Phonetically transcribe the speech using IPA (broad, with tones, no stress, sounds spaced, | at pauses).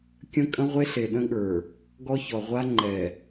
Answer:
kʲ ə̃˦ kʼ ə̃˦ ʁʷ e˦ ɬ e˨ ɗ ə̃˦ ɠ ə˞˨ | ɡ ɔ˦ ç ɔ˨ ʁʷ a˦ ŋ͡ǃ ɛ˨